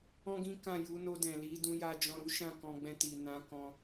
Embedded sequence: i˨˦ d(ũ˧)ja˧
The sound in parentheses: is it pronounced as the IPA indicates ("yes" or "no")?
yes